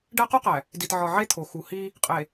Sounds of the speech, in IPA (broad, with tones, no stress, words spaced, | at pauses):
ɖæ˦qo˦qæ˨ | di˨tʕɒ˨ ʕe˦t̪ʰo˨ xu˨hi˦ | qʼe˨